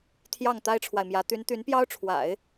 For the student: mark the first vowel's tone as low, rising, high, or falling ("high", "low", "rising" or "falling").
falling